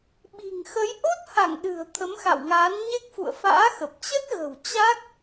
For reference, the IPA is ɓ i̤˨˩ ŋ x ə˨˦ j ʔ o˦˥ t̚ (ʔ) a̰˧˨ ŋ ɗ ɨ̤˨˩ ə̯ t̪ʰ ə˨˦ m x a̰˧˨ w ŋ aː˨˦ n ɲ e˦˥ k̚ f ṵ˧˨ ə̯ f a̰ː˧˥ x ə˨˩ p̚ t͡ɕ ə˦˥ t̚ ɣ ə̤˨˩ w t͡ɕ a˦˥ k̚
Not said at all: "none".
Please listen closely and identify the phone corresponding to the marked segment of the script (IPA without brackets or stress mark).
h